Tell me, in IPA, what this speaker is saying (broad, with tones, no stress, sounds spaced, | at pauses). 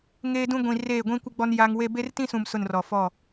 ŋ eː˦ d ũ˦ ɡʷ ĩ˨ r eː˦˨ ɡʷ ĩ˦ kʷ ɪ˦ ɡ͡b ɔ˦ n j a˦ ŋ w e˦ b e˦ r t ĩ˦ s ũ˨ m s ʊ˦˨ n r ɔ˨ f ɔ˦˨